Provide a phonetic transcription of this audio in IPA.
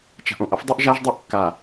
t͡ʃ a̤˨ ʔ õ˨ ʔ ʌ˦ f dˤ ɯ˦ ʔ ʒ a˦ ʒ dˤ ɛ˦ ʔ kː a˨

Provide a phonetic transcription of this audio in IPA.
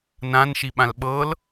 n ã n ʃ i ɓ ã l ɓ ɤ l

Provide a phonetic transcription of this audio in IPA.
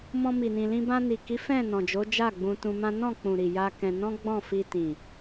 m ɔ̃˧ m i˨ n ĩ˨ l ĩ˧ b ã˧ n i˨ k i˨˦ f ɛ̃˦˨ n ɔ̃˨ d͡ʒ o˨˦ d͡ʒ a˦˨ ɡ͡b ũ˧ t ũ˧ m ã˦ n ɔ̃˦˨ k͡p ũ˨ ɾ i˨ j a˧ k ɛ̃˧ n ɔ̃˦ ɡ͡b ɔ̃˦˨ f i˧ t ĩ˨

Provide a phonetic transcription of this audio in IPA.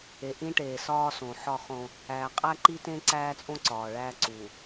e˨ ʔ ĩ˦ ʈ eː˨ s ɒː˦ s õ˨ ħ ɒ˦˨ χ õ˦ | æː˨ qʼ æ˦ ǃ i˦ t ẽ˦ ǀ æː˦ t͡sʼ õ˦ ǀ ɒː˨ ɭ æː˦ ǀ u˨

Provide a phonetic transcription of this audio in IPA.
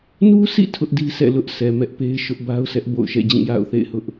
n u˦ sʰ ḭ˦˨ tʰ ʊ˦ ʔ d i˦ s ɛ̰˦˨ l ʊ˦ ʔ s ɛ˨ m ɛ˦ ʔ p e˦ ɪ̯ ʃ ʊ˦ ʔ b a˦ ʊ̯ sʰ ɛ˦ ʔ b o̰˦˨ ʊ̯ ʃ ɛ̰˦˨ d͡ʑ ĩ˦˨ j a̰˦˨ ʊ̯ θ ḛ˦˨ ɪ̯ h ʊ˦ ʔ

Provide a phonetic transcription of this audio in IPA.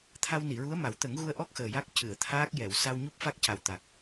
t̪ʰ a˧ w n i˨˩˨ ɹ u˧˥ ə̯ m a˨˩˦ w t̪ ə˨˩˦ ŋ ɣ u˧ ə̯ ʔ ɔ˦˥ k̚ x əː˨˩ j a˦˥ k̚ c ɨ˨˩˨ ə̯ t̪ʰ aː˦˥ k̚ j ɛ˨˩˨ w s a˧ w ɲ u˦˥ p̚ f a˦˥ k̚ c a˨˩ w t̪ a˨˩ k̚

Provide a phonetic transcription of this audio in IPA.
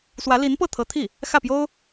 s w ä˧˥ l i˧˥ n p ɤ˥˩ t̪ʰ ɤ˧˥ t̪ʰ i˥˩ | x ä˥˩ p j o˥ ʊ̯

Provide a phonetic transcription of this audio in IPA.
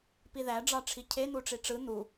p i ð æ ɖ͡ʐ ɑ ʈ͡ʂʰ i cʰ e n̪ u ʈ͡ʂ i ʈ͡ʂ ɯ n̪ u

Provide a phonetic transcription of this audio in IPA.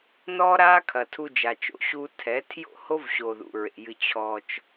n ɔː˦ ɾ aː˦ kʰ ɐ˨ tʰ u˧ d͡ʒ a˨ t͡ʃ o̰˧ ɕ uː˧ tʰ ɛ˨˦ tʰ j o̰˦˨ h o˦ v ɕ o˨ ð ṵ˨ ɹ ḛ˨ j ɨ˧ t͡ɕʰ ɔ˧ t͡ʃ

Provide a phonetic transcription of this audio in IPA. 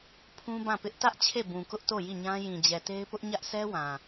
pʰ ũ˦ b ã˦˨ p ɪ˦ ʔ t ä˦ ʔ t͡ɕʰ e˦˨ b ũ˨ k ʊ˦ ʔ t o˦˨ j i˦˨ ɲ ã˦ j ĩ˨ d͡ʑ ɛ˨ t e˦ ɪ̯ p ʊ˦ ʔ ɲ ä˦ ʔ s ɛ˦ w ã˨

